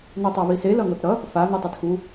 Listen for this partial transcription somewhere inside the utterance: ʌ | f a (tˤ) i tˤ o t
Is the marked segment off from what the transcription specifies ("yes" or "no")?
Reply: yes